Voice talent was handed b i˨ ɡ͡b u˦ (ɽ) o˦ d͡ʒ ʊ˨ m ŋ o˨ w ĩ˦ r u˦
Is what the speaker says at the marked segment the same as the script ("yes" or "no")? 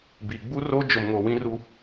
no